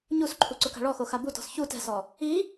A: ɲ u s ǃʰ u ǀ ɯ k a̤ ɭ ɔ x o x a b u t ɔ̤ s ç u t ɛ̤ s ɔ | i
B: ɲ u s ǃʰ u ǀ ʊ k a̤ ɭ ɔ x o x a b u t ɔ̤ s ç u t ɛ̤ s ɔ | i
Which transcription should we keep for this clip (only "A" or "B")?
B